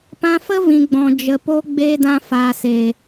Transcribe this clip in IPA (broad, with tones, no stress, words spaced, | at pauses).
pã˧fə˦vĩ˨ɡ͡bɔ̃˨ d͡ʒə˨po˧ ɡ͡beː˧dã˧ faː˨se˨